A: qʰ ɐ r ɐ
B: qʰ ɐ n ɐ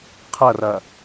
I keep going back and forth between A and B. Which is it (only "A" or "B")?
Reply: A